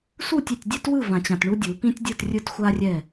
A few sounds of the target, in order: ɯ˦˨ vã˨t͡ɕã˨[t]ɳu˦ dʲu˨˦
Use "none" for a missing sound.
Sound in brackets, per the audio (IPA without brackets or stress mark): t